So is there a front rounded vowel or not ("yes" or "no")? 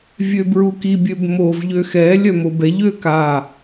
yes